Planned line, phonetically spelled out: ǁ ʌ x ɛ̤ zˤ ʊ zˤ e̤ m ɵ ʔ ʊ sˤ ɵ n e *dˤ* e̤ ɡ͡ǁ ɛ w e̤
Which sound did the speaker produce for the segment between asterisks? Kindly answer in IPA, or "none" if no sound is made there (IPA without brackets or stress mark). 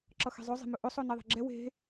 ðˤ